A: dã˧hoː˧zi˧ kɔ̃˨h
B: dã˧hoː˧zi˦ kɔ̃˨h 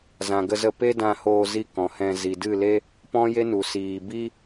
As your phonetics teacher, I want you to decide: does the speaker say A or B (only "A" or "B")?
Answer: A